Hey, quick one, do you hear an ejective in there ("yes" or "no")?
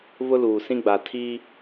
no